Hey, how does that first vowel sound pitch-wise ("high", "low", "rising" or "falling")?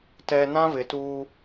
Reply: low